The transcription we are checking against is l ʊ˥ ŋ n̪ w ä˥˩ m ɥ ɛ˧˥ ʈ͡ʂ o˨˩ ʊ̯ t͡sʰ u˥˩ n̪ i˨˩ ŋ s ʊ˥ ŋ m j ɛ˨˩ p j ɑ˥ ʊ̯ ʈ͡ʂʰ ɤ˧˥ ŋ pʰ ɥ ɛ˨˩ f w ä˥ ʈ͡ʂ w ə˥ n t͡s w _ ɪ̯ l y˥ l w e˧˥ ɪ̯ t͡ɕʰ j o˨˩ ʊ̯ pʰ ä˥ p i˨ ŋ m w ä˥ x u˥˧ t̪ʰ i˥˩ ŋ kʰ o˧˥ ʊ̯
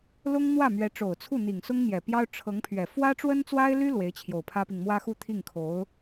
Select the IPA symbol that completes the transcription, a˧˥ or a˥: a˥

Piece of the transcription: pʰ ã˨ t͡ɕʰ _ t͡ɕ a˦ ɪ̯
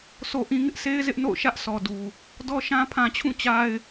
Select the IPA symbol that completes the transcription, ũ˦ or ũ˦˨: ũ˦˨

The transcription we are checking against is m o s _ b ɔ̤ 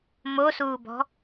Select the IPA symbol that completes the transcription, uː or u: uː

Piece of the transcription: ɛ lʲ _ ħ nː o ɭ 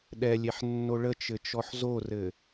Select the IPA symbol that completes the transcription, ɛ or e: e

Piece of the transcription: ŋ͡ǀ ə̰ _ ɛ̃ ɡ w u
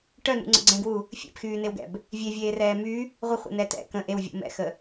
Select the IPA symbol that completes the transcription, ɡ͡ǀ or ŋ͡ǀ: ɡ͡ǀ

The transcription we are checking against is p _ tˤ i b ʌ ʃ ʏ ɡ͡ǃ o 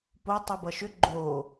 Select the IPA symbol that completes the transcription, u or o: o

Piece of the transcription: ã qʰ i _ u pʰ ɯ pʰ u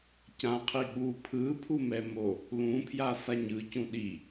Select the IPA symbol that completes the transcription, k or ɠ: ɠ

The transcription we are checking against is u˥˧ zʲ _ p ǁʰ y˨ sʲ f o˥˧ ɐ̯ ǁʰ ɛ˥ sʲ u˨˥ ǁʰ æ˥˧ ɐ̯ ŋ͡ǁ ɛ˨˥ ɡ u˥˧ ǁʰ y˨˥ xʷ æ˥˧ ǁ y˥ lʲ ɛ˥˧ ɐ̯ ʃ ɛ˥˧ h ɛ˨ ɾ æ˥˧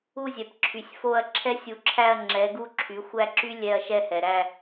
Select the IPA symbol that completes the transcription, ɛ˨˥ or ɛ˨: ɛ˨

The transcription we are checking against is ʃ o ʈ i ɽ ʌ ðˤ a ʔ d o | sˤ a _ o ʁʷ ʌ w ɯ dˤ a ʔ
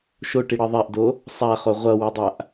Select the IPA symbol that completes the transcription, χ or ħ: χ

